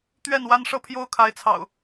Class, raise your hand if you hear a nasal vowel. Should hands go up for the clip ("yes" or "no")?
no